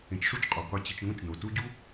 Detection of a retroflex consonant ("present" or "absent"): present